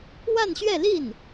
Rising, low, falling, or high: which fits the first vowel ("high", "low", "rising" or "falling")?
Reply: falling